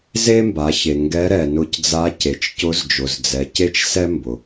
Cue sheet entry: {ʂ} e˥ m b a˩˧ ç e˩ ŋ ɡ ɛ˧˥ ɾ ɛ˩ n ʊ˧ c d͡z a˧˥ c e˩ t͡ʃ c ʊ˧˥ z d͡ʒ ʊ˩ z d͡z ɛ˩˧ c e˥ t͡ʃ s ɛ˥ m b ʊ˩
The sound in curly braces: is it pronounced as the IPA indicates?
no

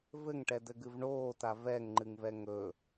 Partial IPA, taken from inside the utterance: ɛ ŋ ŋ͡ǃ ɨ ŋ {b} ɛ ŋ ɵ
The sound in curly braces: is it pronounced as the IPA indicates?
no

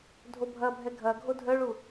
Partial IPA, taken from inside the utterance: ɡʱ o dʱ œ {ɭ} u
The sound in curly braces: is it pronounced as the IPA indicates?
yes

